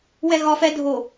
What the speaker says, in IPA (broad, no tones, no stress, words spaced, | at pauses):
wɛɣɒf ɛ dʱo